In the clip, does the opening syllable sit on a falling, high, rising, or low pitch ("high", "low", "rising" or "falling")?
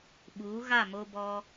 rising